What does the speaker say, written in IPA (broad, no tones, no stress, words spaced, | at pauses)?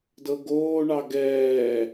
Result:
dɤɡoːɳɑ ɡɛː